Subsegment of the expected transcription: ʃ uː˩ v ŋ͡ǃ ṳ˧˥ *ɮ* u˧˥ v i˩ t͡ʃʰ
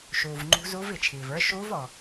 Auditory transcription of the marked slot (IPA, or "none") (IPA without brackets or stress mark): z